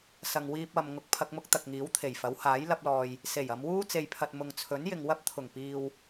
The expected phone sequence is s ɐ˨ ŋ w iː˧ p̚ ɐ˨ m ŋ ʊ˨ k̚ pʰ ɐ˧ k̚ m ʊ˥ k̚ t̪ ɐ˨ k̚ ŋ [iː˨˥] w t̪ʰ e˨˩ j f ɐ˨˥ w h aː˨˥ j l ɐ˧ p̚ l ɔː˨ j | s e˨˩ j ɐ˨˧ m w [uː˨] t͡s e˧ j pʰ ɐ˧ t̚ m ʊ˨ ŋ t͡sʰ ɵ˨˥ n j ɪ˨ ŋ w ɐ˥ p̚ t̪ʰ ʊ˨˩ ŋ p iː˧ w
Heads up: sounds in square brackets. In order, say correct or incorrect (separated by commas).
correct, incorrect